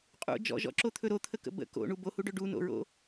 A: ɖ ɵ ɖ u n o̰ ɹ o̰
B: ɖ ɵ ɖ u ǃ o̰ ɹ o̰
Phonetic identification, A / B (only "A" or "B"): A